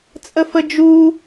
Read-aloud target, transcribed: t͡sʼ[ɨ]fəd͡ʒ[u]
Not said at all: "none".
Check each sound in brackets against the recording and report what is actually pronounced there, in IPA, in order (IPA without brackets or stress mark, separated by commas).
ə, u